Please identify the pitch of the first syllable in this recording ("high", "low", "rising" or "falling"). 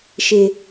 low